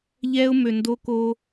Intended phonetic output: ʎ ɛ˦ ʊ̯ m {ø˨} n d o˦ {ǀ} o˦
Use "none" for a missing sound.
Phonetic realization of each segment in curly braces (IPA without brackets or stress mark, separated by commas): ø˨, k